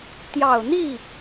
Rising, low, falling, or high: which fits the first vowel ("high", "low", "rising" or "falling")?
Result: low